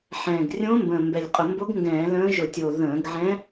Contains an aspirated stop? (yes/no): no